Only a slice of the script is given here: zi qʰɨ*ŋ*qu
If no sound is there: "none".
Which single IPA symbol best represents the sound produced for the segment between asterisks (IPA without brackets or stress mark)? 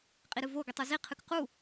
k